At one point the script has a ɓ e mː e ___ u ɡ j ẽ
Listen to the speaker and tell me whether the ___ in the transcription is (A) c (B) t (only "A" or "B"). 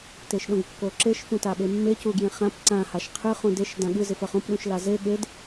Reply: A